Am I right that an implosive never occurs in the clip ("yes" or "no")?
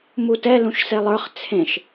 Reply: yes